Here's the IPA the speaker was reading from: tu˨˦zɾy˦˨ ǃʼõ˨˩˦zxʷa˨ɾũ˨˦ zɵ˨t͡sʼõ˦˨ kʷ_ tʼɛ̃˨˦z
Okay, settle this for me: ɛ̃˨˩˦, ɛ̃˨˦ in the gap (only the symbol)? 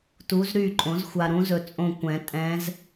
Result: ɛ̃˨˩˦